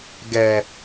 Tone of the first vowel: low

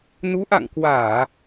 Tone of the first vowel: rising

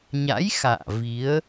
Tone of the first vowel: rising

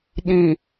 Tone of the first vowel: low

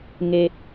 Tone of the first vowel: low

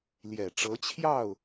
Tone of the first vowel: low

